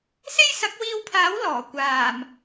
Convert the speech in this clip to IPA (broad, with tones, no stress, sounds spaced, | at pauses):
s e˥ j s ɐ˨˥ k̚ w iː˧ w pʰ aː˨˥ w l ɔː˨˩ kʷ aː˨˩ m